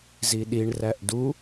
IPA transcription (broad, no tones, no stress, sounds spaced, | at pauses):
z i ɗ i ɳ r æ ʔ d u